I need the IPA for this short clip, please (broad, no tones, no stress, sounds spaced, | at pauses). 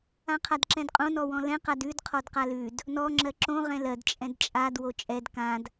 ã qʰ a d ǁ ɛ̃ d qʼ õ n ɔ w ɔ̃ l ɛ̃ q a d ʉ d qʰ ɔ d q a l ʉ d | n ɔ ŋ͡ǁ ɜ ǁ õ ʁ ɛ̃ l ɜ d t͡ʃʼ ɛ̃ d t͡ʃʼ a d w o t͡ʃʼ ɛ d k ã d